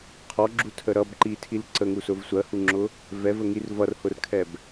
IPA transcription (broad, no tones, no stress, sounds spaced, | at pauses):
qʰ ɔ ɡ͡ǁ u tʰ ə ɾ ʌ b ǃ i tʰ i l ǀ ə ŋ u s ʊ v sʷ ɜ h u ŋ͡ǁ ʊ | v ɛ v ə ŋ i r v ʌ r h ʊ r kʰ ɛ b